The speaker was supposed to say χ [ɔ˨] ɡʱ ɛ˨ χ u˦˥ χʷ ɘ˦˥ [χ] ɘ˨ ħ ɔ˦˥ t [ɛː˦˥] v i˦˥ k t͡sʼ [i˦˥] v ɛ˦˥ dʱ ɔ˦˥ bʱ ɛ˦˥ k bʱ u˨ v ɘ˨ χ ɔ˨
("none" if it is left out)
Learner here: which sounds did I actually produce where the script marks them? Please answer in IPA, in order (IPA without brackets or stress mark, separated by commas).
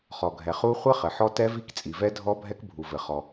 ɔ˨, χ, ɛ˦˥, i˨